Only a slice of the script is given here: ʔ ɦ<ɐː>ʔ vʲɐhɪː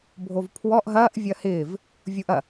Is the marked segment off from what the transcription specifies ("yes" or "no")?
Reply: no